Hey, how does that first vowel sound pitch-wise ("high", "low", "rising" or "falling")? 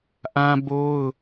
high